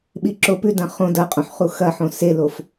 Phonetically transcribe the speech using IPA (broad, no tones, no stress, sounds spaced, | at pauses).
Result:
ɓ i ǁ o p ʉ d ɐ̃ χ õ d ɐ qʼ õ ħ χ u x ɐ ħ õ s e l o f